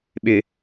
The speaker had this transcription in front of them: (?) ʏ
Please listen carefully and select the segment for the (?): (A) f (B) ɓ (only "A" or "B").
B